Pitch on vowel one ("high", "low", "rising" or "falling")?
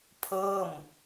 falling